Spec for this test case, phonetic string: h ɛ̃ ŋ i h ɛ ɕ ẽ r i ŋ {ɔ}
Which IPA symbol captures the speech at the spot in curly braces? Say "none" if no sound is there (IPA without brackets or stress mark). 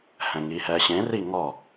ɔ